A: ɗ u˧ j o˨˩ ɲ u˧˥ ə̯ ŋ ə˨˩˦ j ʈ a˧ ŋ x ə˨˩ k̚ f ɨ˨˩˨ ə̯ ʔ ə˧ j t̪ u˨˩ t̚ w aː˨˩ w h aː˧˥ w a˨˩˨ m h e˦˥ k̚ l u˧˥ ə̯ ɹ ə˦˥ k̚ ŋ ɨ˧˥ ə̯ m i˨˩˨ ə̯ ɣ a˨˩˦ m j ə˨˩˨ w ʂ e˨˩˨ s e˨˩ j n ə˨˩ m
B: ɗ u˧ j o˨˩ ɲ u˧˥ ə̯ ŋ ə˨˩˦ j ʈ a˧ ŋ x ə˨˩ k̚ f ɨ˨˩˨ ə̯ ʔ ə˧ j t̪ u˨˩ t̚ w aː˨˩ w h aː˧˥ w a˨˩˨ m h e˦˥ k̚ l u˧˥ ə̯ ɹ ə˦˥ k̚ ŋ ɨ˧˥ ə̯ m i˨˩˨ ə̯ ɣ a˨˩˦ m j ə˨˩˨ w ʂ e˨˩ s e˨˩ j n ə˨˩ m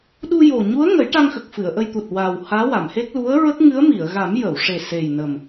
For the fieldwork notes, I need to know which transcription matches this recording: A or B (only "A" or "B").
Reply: B